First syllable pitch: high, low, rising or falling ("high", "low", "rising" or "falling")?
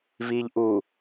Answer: low